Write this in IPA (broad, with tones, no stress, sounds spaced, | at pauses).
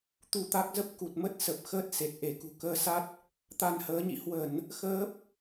t̪ u˧ t̪ a˦˥ k̚ z ə˦˥ p̚ k u˨˩ t̚ m ə˦˥ t̚ s ə˨˩ p̚ x əː˦˥ t̚ s e˨˩ t̚ ʔ e˧˩ k ṳ˨˩ k əː˧ s a˦˥ t̚ | t̪ a˧ n h əː˨˦ ɲ ḭ˧˨ h w ə˧˩˨ n | x əː˦˥ p̚